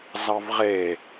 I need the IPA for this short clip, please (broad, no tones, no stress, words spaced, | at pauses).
zɑvʁe